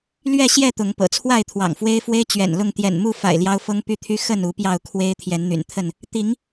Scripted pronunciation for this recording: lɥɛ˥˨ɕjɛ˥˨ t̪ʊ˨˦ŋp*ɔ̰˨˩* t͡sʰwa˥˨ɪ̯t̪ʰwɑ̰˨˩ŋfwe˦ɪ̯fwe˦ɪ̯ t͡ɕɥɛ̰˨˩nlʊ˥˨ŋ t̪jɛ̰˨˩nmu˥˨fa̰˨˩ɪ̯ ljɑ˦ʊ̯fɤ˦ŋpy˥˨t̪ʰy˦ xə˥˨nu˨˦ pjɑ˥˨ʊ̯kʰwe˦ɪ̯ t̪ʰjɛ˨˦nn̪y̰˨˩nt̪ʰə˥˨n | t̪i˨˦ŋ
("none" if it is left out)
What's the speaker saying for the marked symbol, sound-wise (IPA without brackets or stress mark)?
ɤ̰˨˩